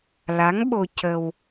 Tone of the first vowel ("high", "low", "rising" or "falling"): rising